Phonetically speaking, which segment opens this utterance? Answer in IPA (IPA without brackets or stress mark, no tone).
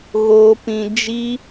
ɣ